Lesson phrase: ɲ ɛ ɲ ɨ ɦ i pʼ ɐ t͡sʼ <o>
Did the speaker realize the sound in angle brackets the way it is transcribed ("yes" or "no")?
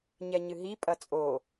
yes